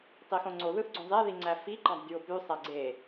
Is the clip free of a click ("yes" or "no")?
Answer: no